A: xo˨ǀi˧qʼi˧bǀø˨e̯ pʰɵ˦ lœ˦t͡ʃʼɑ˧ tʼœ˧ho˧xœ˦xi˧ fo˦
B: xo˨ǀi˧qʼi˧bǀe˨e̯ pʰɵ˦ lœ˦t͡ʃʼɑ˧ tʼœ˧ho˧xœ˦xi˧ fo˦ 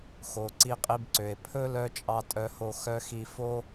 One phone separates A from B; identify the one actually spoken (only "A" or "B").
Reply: A